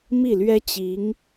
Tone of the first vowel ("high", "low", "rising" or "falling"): falling